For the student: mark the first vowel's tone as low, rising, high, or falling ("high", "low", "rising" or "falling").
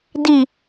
low